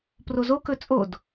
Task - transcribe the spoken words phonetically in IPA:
p r o z o k ɵ t͡sʼ o d

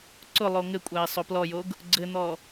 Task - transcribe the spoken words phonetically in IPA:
ǀ ʊ lˠ o ŋ ɘ kʷʼ æ ɪ̯ sˤ o p l ɔ j o ɡ | ɡ͡ǀ ɘ n̪ ɔ

